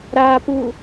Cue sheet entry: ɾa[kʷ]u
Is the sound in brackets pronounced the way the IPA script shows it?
no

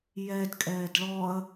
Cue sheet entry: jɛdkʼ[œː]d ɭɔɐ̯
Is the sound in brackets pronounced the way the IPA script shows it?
no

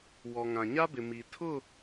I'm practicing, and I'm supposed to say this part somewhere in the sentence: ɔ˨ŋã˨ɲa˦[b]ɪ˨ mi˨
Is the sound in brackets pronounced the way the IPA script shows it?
yes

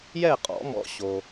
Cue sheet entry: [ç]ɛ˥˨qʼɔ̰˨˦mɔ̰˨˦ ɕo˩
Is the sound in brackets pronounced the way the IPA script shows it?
no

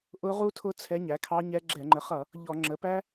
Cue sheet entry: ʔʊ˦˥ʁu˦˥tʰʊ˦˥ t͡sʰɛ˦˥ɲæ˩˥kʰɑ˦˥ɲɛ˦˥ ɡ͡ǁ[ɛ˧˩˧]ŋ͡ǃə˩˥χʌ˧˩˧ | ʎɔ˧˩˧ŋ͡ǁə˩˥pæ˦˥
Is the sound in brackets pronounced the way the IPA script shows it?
yes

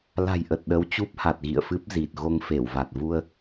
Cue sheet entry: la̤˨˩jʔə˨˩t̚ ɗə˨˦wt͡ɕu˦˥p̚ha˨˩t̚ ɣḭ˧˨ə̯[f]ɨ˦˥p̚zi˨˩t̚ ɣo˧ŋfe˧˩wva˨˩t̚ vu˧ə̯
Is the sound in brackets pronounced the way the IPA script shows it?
yes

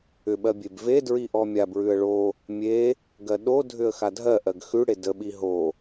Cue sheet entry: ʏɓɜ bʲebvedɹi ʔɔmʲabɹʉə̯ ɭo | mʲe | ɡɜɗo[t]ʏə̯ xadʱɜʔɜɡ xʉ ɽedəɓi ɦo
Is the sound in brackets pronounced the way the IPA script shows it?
no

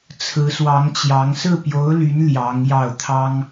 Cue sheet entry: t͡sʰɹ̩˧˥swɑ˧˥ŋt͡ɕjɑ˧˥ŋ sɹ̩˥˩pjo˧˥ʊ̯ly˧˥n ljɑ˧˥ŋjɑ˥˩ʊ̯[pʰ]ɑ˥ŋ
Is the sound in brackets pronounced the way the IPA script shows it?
no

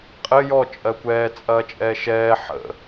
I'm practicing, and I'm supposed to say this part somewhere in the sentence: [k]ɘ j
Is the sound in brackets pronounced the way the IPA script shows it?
no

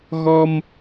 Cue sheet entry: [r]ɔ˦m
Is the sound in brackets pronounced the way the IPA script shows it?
no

